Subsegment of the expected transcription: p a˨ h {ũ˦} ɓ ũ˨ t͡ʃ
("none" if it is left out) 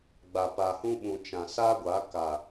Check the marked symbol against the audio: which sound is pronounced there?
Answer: ũ˦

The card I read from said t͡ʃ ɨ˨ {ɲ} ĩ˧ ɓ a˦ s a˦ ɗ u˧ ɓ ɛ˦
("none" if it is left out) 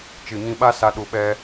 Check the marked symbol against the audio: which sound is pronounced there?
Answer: ɲ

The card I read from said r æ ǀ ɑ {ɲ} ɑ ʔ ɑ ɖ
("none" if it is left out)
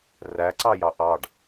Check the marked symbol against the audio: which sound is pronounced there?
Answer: j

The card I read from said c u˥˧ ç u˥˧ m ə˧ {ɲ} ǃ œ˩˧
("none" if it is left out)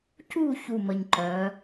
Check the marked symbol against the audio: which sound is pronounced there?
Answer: ɲ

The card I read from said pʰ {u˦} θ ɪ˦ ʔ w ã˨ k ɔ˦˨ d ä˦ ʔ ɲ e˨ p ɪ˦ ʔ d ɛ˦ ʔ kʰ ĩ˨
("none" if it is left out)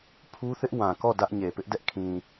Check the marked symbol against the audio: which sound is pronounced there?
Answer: u˦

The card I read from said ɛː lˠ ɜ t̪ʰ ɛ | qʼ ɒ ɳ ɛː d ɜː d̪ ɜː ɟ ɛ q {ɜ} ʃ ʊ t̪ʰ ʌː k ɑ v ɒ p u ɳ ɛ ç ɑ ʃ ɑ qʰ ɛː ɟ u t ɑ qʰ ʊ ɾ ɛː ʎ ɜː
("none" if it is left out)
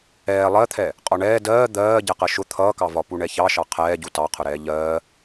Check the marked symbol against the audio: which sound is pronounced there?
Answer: ɜ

